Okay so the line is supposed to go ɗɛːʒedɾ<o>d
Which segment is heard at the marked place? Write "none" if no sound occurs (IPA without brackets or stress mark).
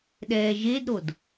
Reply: o